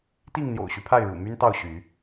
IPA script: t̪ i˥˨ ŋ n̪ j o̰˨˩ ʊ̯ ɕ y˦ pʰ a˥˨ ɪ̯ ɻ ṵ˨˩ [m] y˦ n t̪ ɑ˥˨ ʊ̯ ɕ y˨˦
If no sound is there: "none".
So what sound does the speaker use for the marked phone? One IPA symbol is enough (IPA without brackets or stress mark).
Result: m